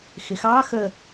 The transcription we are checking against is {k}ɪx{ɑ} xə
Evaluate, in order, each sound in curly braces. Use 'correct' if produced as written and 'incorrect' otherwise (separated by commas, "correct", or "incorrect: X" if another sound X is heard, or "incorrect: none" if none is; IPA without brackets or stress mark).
incorrect: x, correct